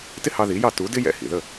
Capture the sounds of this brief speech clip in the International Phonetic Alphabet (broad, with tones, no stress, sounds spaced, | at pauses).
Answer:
t ɪ˥ h ɑ˧ ð i˩˥ j ɑ˥˩ t u˩˥ d ɪ˥ j ɛ̰˧ h ḭ˩ ð ə˥˩